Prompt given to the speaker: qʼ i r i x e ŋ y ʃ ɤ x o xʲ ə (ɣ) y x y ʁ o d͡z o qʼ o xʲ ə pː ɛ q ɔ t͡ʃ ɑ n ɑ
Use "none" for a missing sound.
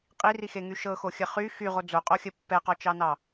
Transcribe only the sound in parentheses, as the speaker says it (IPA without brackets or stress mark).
χ